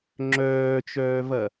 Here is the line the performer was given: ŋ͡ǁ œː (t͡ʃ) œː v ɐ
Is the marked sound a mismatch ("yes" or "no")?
no